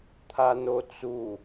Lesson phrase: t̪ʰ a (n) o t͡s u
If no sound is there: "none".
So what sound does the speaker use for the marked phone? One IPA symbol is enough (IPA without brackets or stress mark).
n